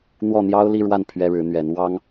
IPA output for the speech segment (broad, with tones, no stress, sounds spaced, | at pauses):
n̪ w ɔ˥˩ n̪ j ɑ˥ ʊ̯ l i˥˧ ɻ w a˥˩ n pʰ ɥ ɛ˥ ɻ ɻ̩˧˥ n̪ ɥ ɛ˧˥ n w ɑ˥ ŋ